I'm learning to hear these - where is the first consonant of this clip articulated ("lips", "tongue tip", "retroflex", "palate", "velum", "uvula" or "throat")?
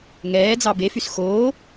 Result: velum